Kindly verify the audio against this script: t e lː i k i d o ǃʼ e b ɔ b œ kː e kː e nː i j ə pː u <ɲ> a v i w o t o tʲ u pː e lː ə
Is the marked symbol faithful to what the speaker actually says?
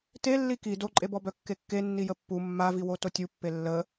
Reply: no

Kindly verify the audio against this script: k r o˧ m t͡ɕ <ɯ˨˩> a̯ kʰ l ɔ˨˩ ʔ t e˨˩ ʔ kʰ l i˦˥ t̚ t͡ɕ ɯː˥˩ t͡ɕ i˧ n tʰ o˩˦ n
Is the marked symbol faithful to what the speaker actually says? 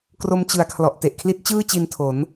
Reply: yes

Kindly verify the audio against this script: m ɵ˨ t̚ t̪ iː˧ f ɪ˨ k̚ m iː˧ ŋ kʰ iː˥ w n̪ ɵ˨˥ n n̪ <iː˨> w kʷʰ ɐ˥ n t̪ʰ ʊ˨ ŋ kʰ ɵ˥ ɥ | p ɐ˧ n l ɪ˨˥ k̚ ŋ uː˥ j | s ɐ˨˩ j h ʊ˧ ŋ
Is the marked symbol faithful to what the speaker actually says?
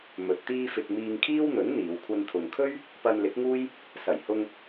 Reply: no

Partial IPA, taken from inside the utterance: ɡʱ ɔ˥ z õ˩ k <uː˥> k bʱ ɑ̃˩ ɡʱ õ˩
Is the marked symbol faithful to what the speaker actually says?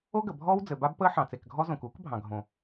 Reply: yes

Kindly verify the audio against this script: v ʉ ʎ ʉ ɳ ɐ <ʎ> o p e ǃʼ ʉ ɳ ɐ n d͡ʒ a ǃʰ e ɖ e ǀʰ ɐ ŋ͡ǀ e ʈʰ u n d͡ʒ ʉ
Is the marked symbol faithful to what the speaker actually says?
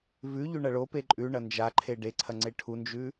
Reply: no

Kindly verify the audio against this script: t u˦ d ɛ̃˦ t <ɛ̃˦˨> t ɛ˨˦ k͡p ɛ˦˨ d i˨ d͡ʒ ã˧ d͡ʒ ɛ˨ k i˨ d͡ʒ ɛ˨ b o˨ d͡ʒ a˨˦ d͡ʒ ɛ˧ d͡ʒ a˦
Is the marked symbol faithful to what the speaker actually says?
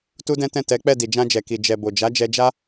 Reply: yes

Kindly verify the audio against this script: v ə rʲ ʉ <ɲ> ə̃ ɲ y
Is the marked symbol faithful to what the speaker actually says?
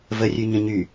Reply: yes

